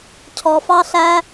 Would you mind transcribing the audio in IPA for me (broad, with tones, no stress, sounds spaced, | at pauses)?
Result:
cʰ ɔ˧ f ɑ˦ ɬ æ˦